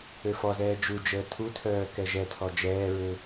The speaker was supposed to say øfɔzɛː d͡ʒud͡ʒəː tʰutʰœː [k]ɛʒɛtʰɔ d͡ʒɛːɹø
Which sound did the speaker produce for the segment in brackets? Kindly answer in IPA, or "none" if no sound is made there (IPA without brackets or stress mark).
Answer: k